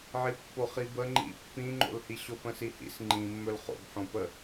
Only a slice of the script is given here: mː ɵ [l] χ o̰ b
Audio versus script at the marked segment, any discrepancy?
no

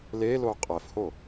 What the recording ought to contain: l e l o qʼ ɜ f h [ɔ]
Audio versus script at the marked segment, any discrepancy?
yes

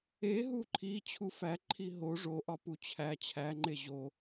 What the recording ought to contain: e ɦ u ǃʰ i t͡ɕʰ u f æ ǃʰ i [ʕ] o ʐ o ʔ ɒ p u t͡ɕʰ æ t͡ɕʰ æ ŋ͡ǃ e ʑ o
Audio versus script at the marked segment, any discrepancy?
yes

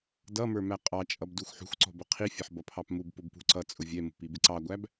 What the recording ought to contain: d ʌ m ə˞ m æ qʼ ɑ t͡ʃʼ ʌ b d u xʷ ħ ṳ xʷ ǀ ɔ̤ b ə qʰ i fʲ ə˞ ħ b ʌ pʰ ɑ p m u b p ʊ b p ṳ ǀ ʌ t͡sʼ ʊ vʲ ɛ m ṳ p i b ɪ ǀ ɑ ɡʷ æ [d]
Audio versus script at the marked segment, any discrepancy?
yes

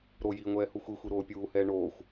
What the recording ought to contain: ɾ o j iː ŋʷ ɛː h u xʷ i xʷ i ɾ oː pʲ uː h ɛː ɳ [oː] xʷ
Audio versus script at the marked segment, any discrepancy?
no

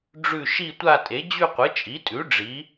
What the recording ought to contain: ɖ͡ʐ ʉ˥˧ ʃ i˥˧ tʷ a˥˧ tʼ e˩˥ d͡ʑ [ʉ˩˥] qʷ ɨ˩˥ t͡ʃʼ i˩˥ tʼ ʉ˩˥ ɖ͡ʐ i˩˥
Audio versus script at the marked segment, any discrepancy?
yes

